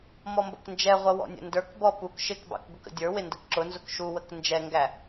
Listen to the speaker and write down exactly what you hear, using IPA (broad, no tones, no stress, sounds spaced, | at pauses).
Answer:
m ɔ m b ə̰ k n d͡ʒ ɛ ʁʷ ʌ w ɔ̰ nʲ ə̰ n d ə˞ k b ɔ p u k ʃ ɪ k b ɑ̰ k ɡ ʊ k ə̰ dʲ ə˞ w ɪ n d ə k ǁ ʊ n z ʊ k ʃ u w ə k n d͡ʒ ɛ ŋ ɡ æ